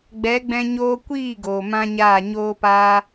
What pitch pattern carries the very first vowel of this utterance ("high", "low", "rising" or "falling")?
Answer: rising